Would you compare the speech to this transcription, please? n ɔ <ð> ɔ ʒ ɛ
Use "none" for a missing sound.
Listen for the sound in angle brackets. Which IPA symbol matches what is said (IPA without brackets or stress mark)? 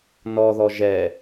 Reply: ð